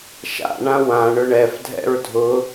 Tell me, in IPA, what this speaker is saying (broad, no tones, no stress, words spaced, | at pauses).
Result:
ʃa̰ɳã wã ɳʊɳɛfdʱɛ̰ɹ dʱʊ